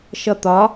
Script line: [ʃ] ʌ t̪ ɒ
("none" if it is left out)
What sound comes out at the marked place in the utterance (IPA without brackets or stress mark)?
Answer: ʃ